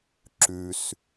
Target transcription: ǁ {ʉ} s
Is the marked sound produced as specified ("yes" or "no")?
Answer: yes